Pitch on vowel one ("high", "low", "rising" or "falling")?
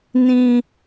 high